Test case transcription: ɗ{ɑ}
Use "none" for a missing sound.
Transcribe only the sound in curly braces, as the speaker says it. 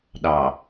ɑ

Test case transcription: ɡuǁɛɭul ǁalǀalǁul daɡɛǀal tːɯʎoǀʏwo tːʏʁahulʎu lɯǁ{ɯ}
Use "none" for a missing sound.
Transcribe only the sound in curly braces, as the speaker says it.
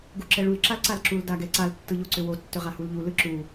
u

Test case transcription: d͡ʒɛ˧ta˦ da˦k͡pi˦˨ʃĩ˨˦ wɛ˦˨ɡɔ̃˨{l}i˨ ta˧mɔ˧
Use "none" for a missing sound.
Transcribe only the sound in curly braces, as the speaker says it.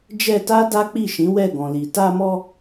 l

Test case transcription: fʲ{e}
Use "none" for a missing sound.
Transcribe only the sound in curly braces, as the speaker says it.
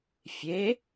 e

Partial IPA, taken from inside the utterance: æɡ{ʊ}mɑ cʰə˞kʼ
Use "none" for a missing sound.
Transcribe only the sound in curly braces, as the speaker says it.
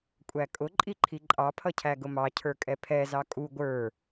ʊ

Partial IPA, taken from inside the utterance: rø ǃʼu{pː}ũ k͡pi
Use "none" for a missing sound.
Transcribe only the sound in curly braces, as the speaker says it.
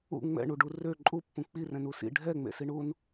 pː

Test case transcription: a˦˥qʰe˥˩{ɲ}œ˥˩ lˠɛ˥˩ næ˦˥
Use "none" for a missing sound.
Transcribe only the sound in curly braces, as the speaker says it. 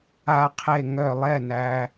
ŋ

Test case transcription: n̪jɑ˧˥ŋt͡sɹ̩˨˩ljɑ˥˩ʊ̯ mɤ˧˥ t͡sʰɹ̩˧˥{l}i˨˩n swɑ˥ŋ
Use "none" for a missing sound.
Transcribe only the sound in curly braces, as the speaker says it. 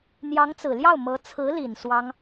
l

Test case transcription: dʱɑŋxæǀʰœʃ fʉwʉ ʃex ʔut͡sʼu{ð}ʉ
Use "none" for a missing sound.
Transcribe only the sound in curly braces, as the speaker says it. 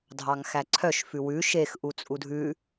dʱ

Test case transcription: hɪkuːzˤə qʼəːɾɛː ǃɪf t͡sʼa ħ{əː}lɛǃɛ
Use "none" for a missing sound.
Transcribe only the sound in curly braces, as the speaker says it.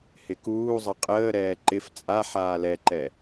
aː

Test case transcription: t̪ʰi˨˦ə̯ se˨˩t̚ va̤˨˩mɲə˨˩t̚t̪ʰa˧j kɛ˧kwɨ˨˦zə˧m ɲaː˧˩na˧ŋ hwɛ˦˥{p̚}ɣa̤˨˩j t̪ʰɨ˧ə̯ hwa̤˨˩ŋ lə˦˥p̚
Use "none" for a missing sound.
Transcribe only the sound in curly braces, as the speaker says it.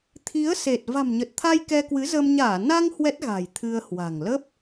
t̚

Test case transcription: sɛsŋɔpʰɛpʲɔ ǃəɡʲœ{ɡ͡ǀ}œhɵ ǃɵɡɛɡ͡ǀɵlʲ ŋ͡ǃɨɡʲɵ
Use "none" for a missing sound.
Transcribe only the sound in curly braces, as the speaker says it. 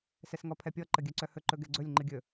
ǀ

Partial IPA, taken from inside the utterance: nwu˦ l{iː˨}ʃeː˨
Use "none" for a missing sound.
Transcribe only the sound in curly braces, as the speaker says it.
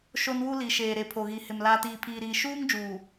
i˨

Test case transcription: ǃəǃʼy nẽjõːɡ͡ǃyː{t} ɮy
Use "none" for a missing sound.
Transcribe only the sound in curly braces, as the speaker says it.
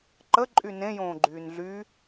n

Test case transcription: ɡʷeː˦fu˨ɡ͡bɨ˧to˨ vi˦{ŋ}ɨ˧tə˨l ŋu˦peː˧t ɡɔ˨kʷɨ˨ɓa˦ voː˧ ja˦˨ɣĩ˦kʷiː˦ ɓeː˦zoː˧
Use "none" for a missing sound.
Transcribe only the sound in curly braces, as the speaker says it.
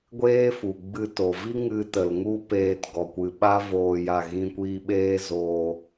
ŋ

